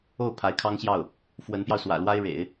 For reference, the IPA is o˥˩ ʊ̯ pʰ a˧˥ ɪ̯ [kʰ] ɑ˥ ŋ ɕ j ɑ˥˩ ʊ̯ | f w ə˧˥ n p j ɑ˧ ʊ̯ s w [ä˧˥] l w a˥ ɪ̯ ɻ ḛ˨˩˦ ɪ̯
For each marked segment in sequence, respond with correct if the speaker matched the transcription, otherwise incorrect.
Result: correct, incorrect: ä̰˨˩

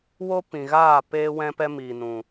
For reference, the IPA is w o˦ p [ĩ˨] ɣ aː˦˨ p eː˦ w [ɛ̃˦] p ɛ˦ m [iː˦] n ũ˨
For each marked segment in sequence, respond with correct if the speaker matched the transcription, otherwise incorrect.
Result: correct, correct, incorrect: iː˨

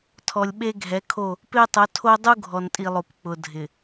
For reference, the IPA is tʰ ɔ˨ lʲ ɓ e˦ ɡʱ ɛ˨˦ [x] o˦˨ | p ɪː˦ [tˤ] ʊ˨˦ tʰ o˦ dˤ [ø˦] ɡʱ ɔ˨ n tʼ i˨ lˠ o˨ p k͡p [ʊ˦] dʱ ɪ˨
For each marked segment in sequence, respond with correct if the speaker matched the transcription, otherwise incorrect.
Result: incorrect: kʰ, correct, incorrect: u˦, incorrect: ʊ˨

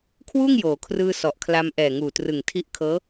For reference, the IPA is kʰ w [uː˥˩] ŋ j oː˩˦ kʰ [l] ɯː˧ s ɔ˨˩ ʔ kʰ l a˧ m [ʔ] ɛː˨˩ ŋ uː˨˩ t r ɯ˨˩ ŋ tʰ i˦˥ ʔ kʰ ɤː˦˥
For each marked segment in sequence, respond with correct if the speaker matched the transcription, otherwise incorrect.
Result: correct, incorrect: r, correct

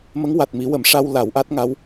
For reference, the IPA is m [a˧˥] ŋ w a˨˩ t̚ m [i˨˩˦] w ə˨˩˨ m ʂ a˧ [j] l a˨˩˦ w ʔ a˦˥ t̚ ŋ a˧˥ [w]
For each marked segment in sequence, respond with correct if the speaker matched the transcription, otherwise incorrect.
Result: incorrect: ə˧˥, correct, incorrect: w, correct

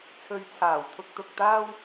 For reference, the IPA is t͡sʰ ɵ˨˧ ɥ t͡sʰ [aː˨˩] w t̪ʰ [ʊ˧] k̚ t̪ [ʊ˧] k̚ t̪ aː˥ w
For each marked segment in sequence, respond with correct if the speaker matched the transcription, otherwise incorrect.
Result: correct, correct, correct

